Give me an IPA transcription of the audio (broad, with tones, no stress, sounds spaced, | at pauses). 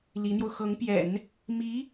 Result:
l i˧˥ n̪ j o˧ ʊ̯ x ɤ˧˥ ŋ p j ɛ̰˨˩˦ n | m i˧˥